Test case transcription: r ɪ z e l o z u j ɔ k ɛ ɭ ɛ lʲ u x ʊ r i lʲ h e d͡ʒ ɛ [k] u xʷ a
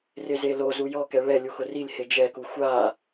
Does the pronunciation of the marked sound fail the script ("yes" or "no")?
no